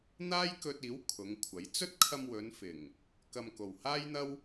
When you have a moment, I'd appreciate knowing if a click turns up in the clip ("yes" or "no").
no